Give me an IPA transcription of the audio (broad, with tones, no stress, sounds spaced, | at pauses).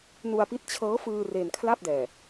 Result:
n u˧ a̯ p i˦˥ t̚ t͡ɕʰ ɤː˦˥ f ɯː˧ r e˧ n kʰ l a˥˩ p̚ d ɛː˨˩